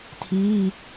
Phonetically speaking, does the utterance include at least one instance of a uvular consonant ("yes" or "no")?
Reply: no